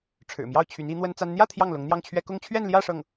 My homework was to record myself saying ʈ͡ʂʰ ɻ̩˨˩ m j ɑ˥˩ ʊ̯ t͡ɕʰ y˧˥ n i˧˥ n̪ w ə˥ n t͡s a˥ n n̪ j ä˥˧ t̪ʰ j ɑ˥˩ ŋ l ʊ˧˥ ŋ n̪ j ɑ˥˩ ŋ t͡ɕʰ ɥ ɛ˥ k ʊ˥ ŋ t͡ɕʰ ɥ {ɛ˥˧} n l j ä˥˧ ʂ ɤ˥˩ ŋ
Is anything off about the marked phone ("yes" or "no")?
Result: no